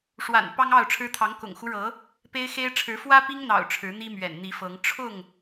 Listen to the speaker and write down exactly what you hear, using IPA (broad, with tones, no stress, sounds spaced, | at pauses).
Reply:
ʂ w a̰˨˩ n p ɑ˦ ŋ ɑ˥˨ ʊ̯ ʈ͡ʂʰ ɻ̩˦ t̪ʰ ɑ˨˦ ŋ k ʊ̰˨˩ ŋ x u˦ ɻ ɤ˨˦ | p e˦ ɪ̯ x e˦ ɪ̯ ʈ͡ʂʰ ɻ̩˨˦ f w ä˦ p i˦ ŋ n̪ ɑ̰˨˩ ʊ̯ ʈ͡ʂʰ ɻ̩˨˦ n̪ i˦ m ɥ ɛ̰˨˩ n n̪ i˨˦ f ɤ˨˦ ŋ ʈ͡ʂʰ ʊ˥˨ ŋ